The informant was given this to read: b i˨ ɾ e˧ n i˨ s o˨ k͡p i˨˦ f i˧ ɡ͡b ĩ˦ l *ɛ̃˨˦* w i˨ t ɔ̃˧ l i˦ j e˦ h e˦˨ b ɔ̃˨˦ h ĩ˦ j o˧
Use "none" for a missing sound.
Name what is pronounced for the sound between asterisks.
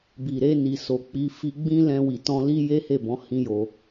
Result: ɛ̃˧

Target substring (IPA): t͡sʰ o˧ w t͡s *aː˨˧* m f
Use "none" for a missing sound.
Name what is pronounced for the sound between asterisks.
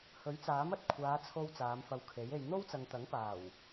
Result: aː˨˧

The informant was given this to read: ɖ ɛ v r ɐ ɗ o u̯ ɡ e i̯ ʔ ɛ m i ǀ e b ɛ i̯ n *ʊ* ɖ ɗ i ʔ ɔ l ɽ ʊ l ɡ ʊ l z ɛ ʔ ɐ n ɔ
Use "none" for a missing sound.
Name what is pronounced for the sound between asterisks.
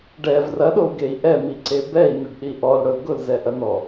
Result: ʊ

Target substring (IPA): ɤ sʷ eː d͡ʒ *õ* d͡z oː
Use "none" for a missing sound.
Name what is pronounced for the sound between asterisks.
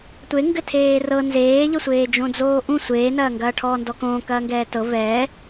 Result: õ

